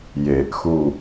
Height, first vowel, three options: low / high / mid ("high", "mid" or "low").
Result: mid